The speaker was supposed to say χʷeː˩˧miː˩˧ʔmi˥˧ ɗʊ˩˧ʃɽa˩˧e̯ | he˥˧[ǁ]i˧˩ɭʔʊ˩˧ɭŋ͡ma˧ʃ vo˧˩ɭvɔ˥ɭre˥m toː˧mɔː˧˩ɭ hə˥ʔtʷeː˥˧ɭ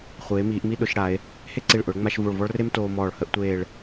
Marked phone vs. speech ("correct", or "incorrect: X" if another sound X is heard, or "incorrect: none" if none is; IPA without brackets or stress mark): incorrect: ǀ